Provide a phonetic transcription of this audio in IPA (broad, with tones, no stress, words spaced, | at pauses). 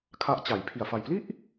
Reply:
kʰa˦˥ʔt͡ɕa˩˦jpʰi˨˩a̯ fa˨˩jpli˥˩ʔ